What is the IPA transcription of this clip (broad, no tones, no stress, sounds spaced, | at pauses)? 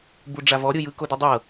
b u ɖ͡ʐ a v ɔ ɾʲ ɯ j ɯ k o d u dˤ ɤ